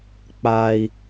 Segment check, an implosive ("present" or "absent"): absent